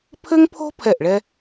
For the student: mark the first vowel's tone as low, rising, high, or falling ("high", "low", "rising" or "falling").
high